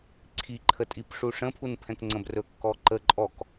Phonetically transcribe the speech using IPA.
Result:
ǀʰiǃʰətʼip ʂuʂə̃pʰunpʰɛ̃k ŋ͡ǀə̃brɵkːɔǃə ǃʼɔk

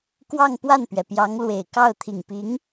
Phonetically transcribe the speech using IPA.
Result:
kwɑ˥˧ŋpwa˥˩npɥɛ˩ pjɑ˧˥ŋlwe˨˩ɪ̯kɑ˥˩ʊ̯ t̪ʰi˨˩ŋpi˧˥ŋ

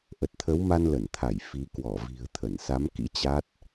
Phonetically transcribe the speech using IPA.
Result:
ʔə˨˩t̚t̪ʰə˨˦wma˧n lə˧˩nt̪ʰa˧˩j fi˨˦ kwɔ˧˩vi̤˨˩ə̯ t̪ʰə˧˩nsa˨˦mkḭ˧˥ t͡ɕa˦˥t̚

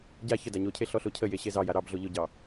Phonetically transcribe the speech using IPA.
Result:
ɟa çə daɲocʰe ɬɔɬocʰəje ɕezɑja ɾɑbɮo ʎʊɟɑ

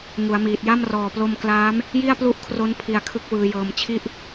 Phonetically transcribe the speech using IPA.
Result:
ŋu˩˦a̯miː˨˩t̚ja˥˩m rɔː˨˩plo˧m klaː˦˥m | ji˥˩a̯plu˥˩ʔkʰro˦˥n pʰi˧a̯kʰɯ˦˥k̚ wɯː˦˥jɤː˦˥m t͡ɕʰi˥˩ʔ

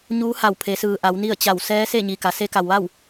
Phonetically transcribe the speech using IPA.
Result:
ɲuː˧˥ha˧˩wpʰe˩˧sɯː˩ ʔa˩˧wni˥˨ə̯t͡ɕa˧˩w sɛː˧˥ se˥˨ɲi˩ ka˩ se˧˥ka˩wʋa˥˨w

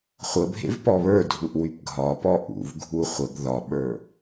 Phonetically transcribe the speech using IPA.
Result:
χʷəbʱḛv pɔβə˞dʱuʔ wypɡʱɒpɔ ʔṵvɡʱu χʷəɡ ðɒɓə˞

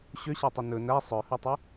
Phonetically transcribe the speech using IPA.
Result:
ɕøɕætˤɵ nɵ næ sˤœhɵtˤø

